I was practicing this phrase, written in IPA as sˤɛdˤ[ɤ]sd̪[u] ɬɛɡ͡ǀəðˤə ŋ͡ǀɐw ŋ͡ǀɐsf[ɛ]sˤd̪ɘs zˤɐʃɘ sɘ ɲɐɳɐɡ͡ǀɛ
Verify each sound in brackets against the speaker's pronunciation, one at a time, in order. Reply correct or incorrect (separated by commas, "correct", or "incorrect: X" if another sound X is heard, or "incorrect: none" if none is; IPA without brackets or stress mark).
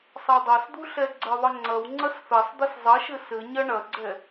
correct, correct, correct